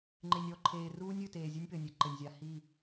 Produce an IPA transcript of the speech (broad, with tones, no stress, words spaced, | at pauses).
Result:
ŋ͡ǃe˨nʲɔ˦˨ǃʰeː˨ruː˦nʲ ɨ˨ teː˨zʲe˦nʲpɘ˨nʲɛ˨ ǃɘ˨nʲzʲa˨hi˦˨